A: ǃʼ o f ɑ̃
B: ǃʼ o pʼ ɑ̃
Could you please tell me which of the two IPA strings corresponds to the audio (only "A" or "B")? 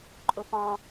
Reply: A